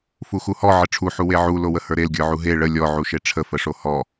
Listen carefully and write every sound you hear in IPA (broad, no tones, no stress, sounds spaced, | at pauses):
f u x u h ɔ ʕ ə ʈ͡ʂʰ u ħ u w e ʕ u l o w ə h ə˞ ɾ e l ɡʲ ə˞ ʕ u ɦ e ɭ ə lʲ ɔ ʕ u ʃ e ʈ͡ʂʰ ə f ə ʂ o h ɔ